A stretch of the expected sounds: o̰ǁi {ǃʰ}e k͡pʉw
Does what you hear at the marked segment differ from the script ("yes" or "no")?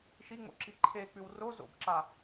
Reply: no